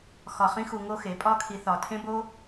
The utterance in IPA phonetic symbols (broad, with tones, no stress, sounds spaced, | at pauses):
x ɒ˧˩ χ ĩ˥ x u˧ ŋ o˥ x e˩˧ pʼ ɒ˥˧ kʰ i˧ θ ɒ˧˩ tʰ ẽ˥ b o˥